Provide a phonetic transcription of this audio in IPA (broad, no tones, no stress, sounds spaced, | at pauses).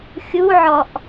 xʲ u ʕ ɔ ʔ